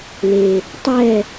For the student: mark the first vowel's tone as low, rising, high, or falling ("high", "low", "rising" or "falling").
low